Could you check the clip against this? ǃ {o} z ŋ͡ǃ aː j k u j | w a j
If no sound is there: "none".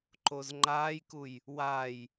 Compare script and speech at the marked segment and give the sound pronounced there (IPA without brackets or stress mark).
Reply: o